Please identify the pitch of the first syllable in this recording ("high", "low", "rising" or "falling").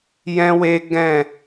high